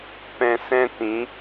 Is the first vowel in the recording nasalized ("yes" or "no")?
yes